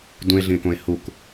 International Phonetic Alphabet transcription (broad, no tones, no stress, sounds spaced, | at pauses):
d ũ e̯ ɮ ĩ e̯ k õ e̯ h u k